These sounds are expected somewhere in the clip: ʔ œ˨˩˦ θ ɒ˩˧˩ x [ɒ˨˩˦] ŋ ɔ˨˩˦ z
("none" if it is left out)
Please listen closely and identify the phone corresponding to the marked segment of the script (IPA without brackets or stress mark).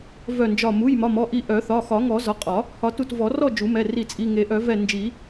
ɒ˨˩˦